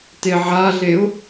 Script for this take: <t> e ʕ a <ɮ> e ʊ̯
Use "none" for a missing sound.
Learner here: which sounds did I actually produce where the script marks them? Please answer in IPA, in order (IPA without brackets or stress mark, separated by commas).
t, ɮ